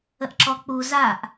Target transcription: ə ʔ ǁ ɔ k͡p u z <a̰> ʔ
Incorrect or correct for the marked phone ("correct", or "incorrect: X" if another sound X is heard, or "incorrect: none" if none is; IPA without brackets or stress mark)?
incorrect: a